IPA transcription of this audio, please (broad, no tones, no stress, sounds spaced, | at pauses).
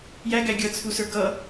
j æ ɡ æ ɡʲ ʌ t͡sʰ u s ə˞ ɡ ʌ